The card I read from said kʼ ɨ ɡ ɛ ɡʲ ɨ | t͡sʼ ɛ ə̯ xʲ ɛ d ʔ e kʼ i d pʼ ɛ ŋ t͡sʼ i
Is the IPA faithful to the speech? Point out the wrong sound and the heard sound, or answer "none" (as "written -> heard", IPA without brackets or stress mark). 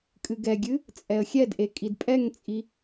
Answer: none